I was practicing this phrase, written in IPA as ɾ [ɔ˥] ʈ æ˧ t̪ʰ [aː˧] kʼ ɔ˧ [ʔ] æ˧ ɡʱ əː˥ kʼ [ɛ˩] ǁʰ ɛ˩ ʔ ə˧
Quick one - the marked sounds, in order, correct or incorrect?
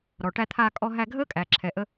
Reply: incorrect: ɔ˩, correct, incorrect: ɦ, incorrect: æ˩

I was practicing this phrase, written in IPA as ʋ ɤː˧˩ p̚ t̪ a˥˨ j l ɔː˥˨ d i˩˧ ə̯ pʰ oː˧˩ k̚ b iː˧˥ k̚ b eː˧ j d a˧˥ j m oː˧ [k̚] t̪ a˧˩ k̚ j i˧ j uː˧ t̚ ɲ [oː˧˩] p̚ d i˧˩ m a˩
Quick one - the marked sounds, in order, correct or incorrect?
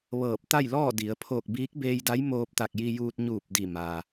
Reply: incorrect: p̚, incorrect: uː˧˩

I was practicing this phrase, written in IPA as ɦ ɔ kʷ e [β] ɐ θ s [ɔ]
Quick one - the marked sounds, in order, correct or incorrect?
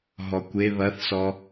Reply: correct, correct

